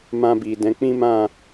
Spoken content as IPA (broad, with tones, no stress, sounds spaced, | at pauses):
m ã˧ b i˨ d ɛ̃˨˦ k͡p ĩ˦ m ã˦˨